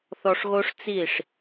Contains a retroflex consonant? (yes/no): yes